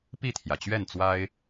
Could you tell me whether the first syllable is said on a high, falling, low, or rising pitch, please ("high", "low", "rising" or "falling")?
falling